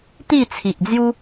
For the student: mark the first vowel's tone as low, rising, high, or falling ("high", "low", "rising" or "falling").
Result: falling